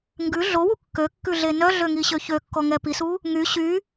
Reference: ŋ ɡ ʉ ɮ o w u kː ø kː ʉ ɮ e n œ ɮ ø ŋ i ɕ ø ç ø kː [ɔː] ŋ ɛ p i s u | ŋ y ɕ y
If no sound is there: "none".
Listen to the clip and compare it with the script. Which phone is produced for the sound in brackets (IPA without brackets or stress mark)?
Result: ɔ